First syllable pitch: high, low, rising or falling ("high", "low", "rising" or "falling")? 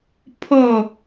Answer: falling